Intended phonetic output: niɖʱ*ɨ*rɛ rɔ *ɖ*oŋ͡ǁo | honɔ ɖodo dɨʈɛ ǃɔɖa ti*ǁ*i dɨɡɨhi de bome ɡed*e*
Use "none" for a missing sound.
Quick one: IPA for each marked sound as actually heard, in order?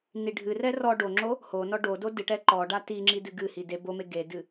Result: ɨ, ɖ, ŋ͡ǁ, ɨ

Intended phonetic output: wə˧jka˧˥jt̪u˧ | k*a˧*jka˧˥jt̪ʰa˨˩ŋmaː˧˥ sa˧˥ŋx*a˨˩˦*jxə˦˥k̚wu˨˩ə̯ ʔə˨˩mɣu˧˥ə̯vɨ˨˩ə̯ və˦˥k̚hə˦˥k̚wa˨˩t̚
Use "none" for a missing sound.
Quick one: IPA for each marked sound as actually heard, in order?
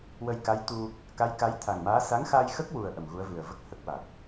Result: a˧˥, a˧

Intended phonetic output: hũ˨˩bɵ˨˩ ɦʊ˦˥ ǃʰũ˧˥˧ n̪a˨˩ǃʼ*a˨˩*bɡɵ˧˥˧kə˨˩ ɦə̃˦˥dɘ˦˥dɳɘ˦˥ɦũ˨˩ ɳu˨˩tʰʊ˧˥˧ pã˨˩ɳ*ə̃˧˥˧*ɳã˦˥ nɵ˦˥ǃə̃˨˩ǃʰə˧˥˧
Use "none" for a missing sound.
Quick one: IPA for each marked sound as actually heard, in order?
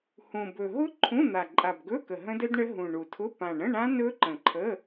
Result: a˨˩, ə̃˧˥˧

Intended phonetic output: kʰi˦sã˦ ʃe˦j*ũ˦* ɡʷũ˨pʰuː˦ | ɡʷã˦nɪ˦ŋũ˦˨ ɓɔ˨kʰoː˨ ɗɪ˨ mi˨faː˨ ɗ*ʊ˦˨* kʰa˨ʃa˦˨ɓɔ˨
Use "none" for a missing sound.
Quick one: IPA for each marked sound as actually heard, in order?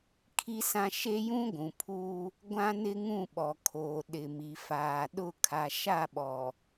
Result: ũ˦, ʊ˦˨

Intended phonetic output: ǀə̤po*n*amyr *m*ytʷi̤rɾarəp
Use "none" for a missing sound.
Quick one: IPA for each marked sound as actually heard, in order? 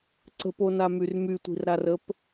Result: n, m

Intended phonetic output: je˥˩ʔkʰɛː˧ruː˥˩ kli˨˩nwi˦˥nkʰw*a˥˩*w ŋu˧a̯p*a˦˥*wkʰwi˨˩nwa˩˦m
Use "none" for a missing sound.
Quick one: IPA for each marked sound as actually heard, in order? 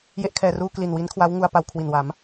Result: a˦˥, a˧

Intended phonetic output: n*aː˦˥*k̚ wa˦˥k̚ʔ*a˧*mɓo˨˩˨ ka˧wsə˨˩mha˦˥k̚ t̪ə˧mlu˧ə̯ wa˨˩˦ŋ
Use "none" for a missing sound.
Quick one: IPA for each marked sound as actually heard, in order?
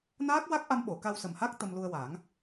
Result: aː˦˥, a˧

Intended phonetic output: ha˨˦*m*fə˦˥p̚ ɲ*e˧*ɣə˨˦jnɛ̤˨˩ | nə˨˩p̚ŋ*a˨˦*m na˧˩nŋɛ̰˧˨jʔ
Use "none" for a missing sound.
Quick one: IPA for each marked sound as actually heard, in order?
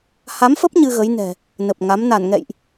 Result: m, ɨ˧, a˨˦

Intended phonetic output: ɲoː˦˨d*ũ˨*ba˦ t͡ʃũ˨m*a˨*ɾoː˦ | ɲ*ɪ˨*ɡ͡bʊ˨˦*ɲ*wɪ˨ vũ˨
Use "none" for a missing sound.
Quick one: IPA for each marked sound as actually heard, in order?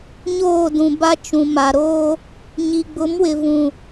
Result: ũ˨, a˨, i˨, m

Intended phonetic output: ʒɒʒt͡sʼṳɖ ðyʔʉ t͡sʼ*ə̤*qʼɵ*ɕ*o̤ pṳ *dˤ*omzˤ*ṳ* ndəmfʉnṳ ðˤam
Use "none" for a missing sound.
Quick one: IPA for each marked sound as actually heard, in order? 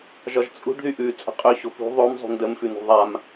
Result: ə̤, ɕ, ðˤ, ṳ

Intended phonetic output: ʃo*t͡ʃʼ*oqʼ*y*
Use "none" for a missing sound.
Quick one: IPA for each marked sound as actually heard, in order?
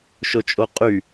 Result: t͡ʃʼ, y

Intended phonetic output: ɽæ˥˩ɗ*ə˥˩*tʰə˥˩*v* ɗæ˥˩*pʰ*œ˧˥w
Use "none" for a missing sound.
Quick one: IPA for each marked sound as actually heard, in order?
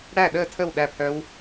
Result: əː˥˩, w, pʰ

